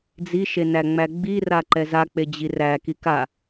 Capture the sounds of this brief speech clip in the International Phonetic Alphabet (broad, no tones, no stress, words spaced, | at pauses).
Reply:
d͡ziʃenæ ŋ͡mæɡ͡bira ǃɛzak͡pe d͡ʑiræ kika